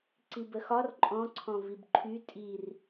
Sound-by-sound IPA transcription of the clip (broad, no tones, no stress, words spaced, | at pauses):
ǀibəxɒr ǃʼɔ̃ǀʰɔ̃ vibǃʰy tʼir